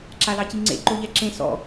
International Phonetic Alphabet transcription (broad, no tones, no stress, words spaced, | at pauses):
ǁalɑciŋ͡ǀḛ ǃoʎɛǁẽ sɔ̰